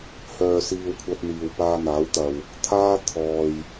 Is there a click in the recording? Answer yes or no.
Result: no